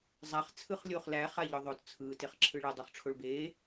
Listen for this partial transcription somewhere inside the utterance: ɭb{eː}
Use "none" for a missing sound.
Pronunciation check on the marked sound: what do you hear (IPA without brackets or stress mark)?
eː